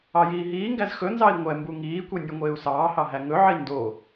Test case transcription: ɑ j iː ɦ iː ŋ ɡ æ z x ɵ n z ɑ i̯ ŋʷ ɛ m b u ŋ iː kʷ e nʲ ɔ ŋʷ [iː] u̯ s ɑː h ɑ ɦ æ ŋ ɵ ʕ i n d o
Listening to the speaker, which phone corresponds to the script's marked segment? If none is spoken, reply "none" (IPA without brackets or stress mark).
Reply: eː